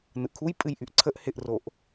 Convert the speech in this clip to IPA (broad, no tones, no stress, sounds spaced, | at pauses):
n ɯ ʔ kʰ u j pʼ ɨ j ʔ y ʔ ǀʰ ə ʔ h ɪ ʔ r o ʔ